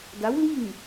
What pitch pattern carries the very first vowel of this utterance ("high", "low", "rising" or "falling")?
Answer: rising